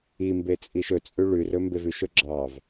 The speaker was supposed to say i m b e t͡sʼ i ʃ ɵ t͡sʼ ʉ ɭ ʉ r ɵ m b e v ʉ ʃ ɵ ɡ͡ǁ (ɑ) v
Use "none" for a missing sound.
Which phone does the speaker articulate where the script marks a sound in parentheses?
ɑ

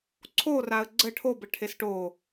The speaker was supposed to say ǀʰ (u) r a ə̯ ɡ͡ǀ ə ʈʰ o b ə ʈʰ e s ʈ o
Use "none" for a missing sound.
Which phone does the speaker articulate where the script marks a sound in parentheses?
o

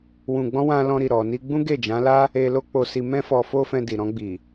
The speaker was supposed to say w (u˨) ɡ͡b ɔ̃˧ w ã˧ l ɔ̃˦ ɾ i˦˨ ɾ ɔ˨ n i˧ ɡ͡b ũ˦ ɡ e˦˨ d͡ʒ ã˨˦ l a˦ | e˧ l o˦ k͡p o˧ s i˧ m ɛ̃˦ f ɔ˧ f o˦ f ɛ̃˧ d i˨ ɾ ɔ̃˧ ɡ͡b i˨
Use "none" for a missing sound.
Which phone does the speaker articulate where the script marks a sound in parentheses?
ũ˨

